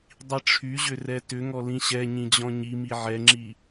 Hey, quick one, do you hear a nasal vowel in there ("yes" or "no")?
yes